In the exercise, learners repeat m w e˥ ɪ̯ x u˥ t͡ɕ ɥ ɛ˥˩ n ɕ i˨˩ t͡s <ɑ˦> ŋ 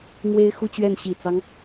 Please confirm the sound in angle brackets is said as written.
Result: yes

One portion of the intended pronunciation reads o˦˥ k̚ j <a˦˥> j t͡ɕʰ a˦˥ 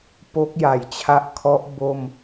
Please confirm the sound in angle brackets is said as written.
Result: no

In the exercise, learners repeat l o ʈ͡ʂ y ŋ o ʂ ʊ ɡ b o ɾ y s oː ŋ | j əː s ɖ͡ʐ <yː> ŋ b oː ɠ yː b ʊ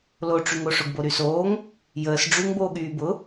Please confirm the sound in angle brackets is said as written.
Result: no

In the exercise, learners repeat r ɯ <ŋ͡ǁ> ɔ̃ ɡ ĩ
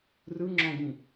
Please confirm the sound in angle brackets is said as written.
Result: yes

